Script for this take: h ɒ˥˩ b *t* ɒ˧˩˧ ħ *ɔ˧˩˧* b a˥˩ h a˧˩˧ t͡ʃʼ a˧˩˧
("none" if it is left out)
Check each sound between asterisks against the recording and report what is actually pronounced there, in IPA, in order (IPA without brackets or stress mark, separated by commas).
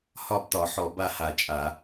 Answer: t, ɔ˧˩˧